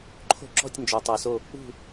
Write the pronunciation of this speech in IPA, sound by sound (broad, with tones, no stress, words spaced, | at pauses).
ǃʰo̤˦˨ǁɔ̤˦˨tʲ nd͡ʒo˨tˤɜ˨so˦˨ | ṳ˦˨